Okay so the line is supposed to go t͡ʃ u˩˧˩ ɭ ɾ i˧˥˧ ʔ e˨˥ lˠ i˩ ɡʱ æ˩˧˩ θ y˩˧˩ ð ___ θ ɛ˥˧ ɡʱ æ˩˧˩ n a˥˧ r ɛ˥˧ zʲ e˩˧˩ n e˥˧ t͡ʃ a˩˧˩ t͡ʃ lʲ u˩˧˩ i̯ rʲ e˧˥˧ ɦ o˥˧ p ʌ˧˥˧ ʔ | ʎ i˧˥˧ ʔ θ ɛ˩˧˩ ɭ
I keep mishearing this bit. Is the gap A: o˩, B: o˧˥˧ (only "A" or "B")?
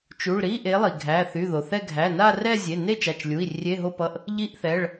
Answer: A